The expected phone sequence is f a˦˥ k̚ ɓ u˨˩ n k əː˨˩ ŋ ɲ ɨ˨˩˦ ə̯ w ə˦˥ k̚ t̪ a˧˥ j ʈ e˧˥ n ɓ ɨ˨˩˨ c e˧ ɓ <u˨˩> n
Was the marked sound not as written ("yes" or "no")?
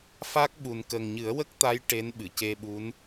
yes